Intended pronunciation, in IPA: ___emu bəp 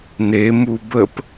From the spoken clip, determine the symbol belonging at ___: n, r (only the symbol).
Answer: n